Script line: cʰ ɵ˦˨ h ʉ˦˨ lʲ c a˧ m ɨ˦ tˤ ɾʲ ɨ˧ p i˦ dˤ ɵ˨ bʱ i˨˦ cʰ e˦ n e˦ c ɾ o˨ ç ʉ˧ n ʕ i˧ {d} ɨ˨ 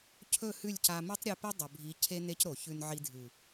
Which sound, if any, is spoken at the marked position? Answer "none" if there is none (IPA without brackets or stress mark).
dʱ